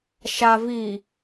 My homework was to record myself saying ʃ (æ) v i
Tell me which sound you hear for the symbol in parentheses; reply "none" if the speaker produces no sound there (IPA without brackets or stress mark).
a